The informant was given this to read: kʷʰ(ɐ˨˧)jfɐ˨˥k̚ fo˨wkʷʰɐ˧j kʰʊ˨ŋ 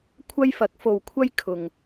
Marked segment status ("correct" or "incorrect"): incorrect